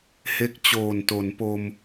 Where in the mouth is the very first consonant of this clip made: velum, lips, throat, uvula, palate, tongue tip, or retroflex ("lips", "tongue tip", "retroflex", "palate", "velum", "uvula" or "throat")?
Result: throat